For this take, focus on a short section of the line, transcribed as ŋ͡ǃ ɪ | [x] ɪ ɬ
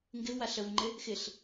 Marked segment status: correct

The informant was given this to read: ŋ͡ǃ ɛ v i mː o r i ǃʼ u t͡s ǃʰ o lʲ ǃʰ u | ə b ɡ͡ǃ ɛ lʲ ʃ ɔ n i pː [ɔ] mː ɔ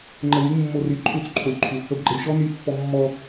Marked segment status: correct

